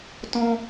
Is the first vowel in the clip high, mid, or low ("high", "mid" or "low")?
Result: mid